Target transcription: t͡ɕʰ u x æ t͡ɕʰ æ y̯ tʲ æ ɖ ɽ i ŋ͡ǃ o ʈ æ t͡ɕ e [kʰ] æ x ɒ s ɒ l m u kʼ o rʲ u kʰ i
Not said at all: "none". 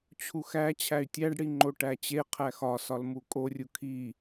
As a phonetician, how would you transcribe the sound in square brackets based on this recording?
qʰ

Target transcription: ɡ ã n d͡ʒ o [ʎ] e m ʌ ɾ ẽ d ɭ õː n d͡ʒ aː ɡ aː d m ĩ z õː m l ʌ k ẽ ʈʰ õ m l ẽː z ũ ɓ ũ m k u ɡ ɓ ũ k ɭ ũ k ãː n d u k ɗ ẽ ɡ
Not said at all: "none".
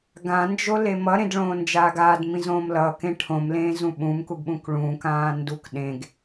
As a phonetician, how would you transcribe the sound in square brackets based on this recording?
l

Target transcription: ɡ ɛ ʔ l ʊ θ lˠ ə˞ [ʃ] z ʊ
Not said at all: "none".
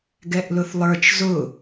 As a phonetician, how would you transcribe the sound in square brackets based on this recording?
t͡ʃ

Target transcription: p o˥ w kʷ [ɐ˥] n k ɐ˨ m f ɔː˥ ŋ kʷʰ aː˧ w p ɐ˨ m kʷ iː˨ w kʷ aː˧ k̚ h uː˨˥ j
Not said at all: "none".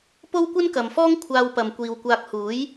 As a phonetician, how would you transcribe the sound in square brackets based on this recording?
ɐ˥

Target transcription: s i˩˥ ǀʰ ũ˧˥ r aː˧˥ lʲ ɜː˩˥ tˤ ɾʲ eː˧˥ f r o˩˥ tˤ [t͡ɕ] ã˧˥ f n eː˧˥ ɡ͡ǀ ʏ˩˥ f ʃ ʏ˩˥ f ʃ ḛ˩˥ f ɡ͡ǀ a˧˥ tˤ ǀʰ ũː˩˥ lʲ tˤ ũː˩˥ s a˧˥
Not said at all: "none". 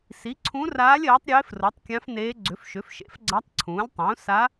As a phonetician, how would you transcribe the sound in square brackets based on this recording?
kʲ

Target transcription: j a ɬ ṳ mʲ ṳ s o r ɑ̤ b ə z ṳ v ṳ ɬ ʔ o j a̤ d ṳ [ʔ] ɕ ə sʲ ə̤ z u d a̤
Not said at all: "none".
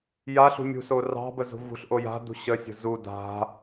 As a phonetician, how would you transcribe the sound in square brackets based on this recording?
none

